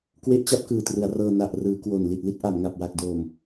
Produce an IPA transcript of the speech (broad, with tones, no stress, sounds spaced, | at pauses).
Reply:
k w e˦˥ ʔ t͡ɕ a˦˥ p̚ k ɯː˨˩ t r ɯ˩˦ a̯ r ɤː˧ n a˨˩ ʔ r ɯː˩˦ k w o˨˩ n l i˨˩ t̚ l i˥˩ t̚ ʔ a˩˦ m ŋ a˨˩ p̚ w a˨˩ k̚ d oː˨˩ m